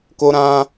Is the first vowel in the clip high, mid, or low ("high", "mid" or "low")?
mid